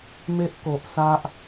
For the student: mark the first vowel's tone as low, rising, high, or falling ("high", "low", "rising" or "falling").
high